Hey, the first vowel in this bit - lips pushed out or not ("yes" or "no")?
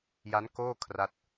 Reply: no